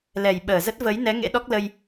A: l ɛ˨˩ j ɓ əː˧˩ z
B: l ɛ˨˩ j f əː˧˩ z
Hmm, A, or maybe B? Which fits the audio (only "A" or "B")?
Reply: A